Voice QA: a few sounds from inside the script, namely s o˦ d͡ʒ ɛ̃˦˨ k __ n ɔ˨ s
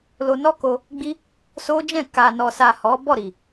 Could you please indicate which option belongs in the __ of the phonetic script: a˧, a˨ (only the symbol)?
a˨